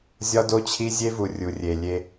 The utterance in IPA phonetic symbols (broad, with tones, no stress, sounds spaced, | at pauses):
zʲ ɒ˦ d o˦ t͡ɕʰ i˦ zʲ e˧ v u˨ rʲ u˨ rʲ e˨ lʲ e˧